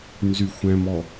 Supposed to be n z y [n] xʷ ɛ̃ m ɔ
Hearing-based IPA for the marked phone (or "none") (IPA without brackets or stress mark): none